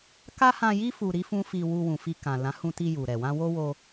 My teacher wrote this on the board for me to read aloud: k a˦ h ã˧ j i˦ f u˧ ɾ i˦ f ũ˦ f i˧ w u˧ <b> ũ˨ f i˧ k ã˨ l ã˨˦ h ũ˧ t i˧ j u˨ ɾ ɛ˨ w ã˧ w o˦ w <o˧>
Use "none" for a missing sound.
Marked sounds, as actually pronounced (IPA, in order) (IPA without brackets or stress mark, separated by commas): w, o˧